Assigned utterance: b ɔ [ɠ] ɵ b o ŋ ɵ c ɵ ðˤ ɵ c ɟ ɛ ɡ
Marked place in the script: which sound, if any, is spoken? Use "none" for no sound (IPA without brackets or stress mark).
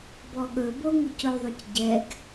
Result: ɠ